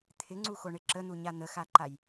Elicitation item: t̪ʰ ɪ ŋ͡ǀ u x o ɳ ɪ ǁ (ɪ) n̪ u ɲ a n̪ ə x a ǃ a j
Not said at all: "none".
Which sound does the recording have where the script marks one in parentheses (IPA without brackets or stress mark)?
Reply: ə